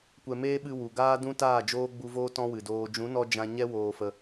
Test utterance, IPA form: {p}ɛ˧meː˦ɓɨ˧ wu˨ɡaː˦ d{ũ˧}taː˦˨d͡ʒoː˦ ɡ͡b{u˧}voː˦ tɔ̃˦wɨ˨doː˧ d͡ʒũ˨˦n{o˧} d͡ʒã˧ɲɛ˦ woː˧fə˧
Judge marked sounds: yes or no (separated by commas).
no, no, yes, no